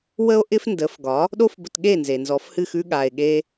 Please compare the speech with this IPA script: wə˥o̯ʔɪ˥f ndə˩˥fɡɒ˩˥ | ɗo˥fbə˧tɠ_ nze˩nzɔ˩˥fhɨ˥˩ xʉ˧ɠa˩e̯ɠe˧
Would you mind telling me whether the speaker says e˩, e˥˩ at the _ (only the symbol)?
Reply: e˥˩